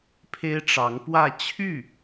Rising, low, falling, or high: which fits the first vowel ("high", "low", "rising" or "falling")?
high